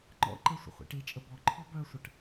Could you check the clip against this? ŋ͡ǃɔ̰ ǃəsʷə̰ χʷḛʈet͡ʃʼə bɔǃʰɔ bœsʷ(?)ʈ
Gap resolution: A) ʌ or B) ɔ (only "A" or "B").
A